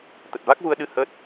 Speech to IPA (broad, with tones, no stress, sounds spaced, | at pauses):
t̪ ə˨˩ t̚ v a˦˥ k̚ v u˧ ə̯ ɗ ɨ˧ h ə˦˥ t̚